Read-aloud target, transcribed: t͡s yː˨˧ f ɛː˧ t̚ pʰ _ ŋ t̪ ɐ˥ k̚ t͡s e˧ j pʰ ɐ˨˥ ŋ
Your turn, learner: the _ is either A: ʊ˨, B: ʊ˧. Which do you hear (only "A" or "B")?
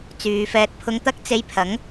B